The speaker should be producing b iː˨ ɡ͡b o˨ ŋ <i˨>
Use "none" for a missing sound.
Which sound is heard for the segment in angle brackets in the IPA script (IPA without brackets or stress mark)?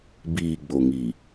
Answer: i˨